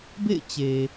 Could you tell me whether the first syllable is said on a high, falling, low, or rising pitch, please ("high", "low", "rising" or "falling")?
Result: falling